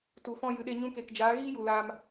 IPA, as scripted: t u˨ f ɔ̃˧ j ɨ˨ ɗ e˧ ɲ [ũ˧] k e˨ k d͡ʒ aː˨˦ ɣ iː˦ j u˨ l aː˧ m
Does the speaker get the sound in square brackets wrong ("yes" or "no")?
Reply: no